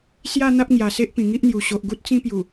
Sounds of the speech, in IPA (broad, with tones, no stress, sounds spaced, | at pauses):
s j a˥˧ n̪ a˦ p̚ ŋ j a˨˩ s e˦ ʔ p ĩ˨˩ ŋ i˦ ʔ n̪ j u˨˩ ɕ o˨ ʔ ɡ u˦ t̚ t͡s ĩ˦ p j u˨˩